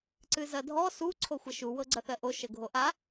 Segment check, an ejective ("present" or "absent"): absent